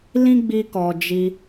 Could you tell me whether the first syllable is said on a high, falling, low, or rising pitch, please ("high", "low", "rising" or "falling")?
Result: high